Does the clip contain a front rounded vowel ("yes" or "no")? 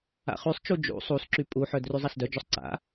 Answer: yes